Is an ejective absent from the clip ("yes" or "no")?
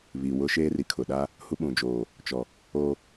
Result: yes